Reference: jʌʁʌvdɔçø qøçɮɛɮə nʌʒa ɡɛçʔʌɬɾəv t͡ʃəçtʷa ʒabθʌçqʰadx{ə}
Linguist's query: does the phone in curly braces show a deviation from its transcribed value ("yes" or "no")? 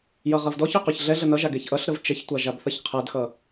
yes